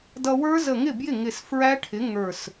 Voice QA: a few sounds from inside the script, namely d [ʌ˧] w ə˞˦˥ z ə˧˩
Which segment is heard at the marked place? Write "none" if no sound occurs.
ʌ˧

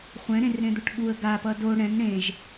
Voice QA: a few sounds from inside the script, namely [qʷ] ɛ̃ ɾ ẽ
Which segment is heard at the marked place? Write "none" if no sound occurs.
χʷ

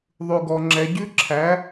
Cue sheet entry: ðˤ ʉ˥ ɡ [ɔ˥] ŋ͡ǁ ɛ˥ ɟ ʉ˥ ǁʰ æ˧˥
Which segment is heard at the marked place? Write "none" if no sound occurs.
ɔ˥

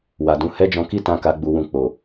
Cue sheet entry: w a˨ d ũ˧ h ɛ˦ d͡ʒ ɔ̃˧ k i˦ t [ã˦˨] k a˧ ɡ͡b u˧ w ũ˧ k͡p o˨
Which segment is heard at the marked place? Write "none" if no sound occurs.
ã˧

